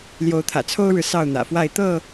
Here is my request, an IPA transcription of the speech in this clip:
l j o˨˦ ʊ̯ t̪ʰ ä̰˨˩ t͡sʰ o˦ ʊ̯ ɻ ɻ̩˨ s ɑ˥˨ ʊ̯ n̪ ä̰˨˩ f w a˥˨ ɪ̯ t̪ ɤ˥˨

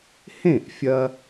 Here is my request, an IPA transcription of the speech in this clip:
h ẽ˥˩ ʔ fʲ ɐ˧

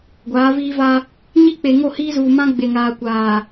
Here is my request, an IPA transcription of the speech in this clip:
ɡʷ aː˨˦ v iː˦ v a˦ | ɲ i˦ k͡p e˨ ŋ o˦˨ h iː˦ z uː˨ m ã˦ ɡ͡b e˨ ŋ aː˨ kʷ aː˨

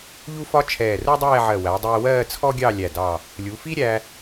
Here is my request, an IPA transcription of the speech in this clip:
ʎ u˥ f ɒ˥ t͡ʃʰ ɛː˧˩ r u˥ dˤ ɛː˥˧ ʕ ɜ˧˩ w æ˩˧ dˤ ɛː˧ w ɜː˥˧ t͡sʰ ɔ˥ ɡʲ ɑ˥˧ lʲ æ˧˩ d ɑ˧˩ | lʲ u˩˧ f i˥ ɾʲ æ˧

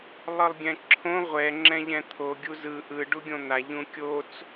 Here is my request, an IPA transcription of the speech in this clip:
lˠ ɯ lˠ ɡʲ ɛ̃ ǁʰ õ ʁʷ ɛ ŋ͡ǁ ɛ̃ ʎ ɛ̃ t̪ʰ o ɡʲ u z ɯ ʔ ɯ ɖ u ɡʲ õ n̪ a ʎ ũ kʲ o t͡s

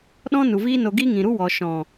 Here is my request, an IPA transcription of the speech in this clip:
ɗ ɔ̃˦ n u˨ v iː˦ n o˧ ɡ i˦ ŋ ĩ˨ ɾ u˦ w ɔ˨ ʃ ɔ̃˨

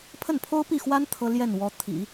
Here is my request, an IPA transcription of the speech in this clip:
pʰ ə˥˩ n pʰ o˥ ʊ̯ p i˥˩ x w a˥ n t̪ʰ ɤ˥ l j ɛ˥˩ n w ɔ˧˥ t̪ʰ ḭ˨˩˦

